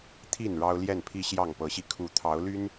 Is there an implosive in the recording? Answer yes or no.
no